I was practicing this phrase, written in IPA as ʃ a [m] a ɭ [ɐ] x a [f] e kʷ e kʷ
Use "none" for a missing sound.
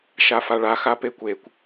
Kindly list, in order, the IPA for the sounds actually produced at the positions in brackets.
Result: f, a, p

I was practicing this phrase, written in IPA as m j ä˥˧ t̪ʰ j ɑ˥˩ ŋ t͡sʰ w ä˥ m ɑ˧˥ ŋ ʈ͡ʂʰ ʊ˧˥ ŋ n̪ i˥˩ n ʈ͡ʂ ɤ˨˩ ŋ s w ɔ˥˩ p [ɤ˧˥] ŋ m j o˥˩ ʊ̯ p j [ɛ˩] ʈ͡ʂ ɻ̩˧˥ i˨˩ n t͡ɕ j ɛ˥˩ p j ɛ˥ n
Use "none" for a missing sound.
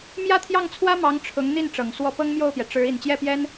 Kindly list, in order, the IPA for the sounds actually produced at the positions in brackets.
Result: ɤ˥, ɛ˩

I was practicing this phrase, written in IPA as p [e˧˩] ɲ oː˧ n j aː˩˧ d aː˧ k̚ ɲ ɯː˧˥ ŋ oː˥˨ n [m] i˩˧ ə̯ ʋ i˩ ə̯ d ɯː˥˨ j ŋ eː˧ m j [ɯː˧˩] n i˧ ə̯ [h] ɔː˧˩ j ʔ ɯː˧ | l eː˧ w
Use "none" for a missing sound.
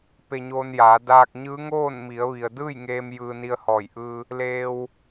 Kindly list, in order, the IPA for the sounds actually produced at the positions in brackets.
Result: e˧, m, ɯː˧, h

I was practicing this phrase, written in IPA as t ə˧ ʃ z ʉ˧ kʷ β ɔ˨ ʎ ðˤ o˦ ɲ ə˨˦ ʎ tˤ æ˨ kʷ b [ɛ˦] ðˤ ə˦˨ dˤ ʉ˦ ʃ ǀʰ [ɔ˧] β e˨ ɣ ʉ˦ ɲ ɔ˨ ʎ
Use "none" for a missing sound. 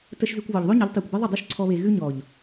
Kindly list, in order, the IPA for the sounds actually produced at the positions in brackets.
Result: e˦, ɔ˧

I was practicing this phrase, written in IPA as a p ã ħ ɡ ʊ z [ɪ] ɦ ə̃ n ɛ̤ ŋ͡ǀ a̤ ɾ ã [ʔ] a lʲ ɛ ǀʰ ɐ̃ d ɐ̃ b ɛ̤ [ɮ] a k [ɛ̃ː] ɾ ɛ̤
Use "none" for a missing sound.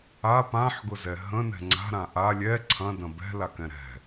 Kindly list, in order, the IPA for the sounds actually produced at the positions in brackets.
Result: ɛ, ʔ, l, ɛ̃

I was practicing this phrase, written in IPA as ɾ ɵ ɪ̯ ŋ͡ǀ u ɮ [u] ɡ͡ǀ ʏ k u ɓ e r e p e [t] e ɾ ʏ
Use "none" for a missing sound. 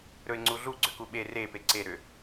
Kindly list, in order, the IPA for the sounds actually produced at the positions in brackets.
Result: u, ǀ

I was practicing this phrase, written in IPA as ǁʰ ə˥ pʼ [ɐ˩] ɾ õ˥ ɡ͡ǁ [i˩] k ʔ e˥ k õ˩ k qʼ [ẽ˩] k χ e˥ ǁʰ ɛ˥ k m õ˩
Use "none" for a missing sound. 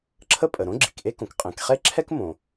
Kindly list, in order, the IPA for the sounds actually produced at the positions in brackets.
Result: ə˩, i˩, ẽ˩

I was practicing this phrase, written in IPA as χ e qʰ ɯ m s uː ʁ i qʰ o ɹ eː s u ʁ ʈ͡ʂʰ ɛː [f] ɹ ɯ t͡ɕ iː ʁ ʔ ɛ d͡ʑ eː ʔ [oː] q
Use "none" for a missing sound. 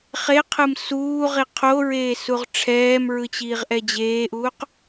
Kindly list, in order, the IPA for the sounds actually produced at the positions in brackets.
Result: m, uː

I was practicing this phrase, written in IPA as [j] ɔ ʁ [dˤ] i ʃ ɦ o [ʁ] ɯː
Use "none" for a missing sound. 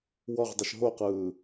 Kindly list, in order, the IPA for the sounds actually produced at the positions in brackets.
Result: w, dˤ, q

